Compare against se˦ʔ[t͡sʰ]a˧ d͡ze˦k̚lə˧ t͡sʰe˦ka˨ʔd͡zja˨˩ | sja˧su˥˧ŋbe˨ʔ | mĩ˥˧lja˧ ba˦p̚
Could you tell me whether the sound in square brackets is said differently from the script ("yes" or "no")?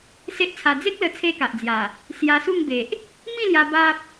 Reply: no